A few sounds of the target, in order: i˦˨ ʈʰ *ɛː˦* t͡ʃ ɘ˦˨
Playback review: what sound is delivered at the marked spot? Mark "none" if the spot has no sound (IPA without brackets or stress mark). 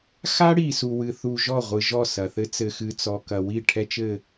ɛ˦